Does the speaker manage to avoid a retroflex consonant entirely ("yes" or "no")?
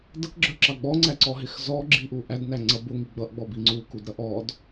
yes